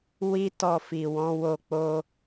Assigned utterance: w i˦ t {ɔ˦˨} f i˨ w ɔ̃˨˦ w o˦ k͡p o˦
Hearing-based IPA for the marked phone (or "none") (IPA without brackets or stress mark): ɔ˦˨